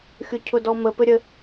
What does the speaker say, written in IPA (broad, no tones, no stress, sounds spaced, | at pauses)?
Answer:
xʲ ʊ cʰ ʊ d ɔ m ə p ɘ ɾʲ ə